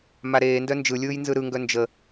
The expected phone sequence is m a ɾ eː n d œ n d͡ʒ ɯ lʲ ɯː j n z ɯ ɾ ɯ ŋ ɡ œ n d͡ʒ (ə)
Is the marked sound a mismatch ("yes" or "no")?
no